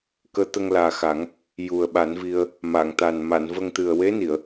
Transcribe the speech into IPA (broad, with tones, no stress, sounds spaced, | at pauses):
k əː˧˥ t̪ ə˧ ŋ l aː˨˩ x a˨˩˦ ŋ | j u˨˩ ə̯ ɓ a˨˩˦ n v i˧ ə̯ | m a˨˩˨ ŋ t̪ a˨˩ n m a˨˩˨ n v ə˧ ŋ t̪ ɨ˨˩ ə̯ w e˧˥ n i˨˩˨ ə̯